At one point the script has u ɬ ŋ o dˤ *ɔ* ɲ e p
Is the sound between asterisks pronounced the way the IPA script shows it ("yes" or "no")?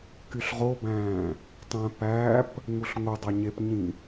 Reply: no